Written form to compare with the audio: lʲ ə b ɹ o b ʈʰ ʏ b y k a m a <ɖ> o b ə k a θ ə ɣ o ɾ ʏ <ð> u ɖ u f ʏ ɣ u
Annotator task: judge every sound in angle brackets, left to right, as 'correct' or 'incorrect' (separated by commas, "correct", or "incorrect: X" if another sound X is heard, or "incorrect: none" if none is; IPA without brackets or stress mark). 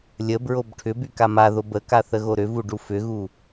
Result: incorrect: ð, incorrect: v